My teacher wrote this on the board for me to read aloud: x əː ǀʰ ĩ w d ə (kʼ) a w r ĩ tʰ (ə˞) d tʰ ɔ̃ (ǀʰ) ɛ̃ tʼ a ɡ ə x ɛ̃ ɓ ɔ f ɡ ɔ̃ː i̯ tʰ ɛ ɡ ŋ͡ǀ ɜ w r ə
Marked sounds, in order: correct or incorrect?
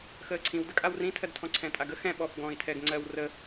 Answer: correct, incorrect: ɜ, correct

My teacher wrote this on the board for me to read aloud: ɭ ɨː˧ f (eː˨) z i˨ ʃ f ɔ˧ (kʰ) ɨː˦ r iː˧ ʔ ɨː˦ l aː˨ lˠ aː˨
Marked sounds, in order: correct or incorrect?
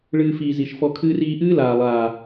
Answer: incorrect: iː˨, correct

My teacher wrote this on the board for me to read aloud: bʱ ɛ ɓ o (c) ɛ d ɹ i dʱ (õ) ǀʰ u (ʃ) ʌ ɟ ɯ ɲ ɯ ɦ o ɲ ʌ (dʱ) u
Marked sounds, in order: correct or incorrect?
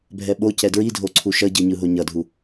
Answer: correct, incorrect: o, correct, correct

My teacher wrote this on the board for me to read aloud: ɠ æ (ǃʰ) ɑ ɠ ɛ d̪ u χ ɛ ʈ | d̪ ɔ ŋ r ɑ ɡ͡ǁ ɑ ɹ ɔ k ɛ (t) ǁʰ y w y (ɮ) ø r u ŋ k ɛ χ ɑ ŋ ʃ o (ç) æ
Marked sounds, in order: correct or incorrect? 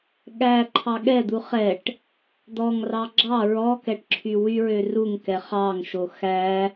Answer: correct, incorrect: ʈ, incorrect: ɹ, incorrect: x

